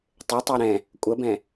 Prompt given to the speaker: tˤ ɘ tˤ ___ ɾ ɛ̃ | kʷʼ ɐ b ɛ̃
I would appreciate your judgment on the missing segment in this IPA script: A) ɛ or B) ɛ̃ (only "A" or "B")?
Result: A